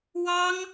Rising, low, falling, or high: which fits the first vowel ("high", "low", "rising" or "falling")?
high